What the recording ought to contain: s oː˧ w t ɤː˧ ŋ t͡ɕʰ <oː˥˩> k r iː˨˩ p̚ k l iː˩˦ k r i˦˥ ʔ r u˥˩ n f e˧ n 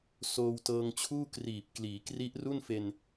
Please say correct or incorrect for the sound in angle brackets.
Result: incorrect